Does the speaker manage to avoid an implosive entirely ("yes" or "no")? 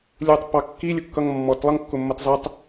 yes